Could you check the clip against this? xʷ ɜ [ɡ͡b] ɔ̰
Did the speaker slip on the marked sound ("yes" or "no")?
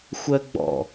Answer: no